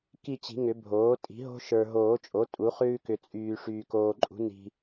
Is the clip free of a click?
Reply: no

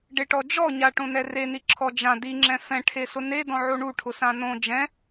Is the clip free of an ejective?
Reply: yes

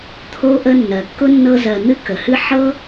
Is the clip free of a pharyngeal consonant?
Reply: no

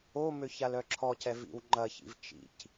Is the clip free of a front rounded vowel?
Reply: no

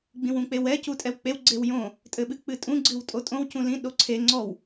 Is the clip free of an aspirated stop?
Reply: no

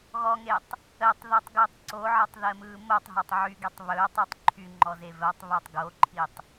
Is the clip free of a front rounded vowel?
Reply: no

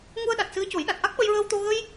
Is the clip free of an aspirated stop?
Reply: yes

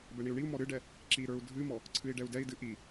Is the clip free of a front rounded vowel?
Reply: yes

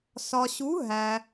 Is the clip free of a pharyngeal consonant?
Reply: yes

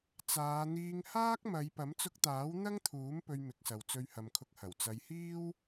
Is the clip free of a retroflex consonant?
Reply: yes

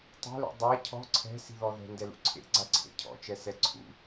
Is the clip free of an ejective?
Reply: yes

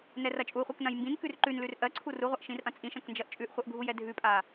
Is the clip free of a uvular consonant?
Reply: no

